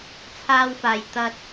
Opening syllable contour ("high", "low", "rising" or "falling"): high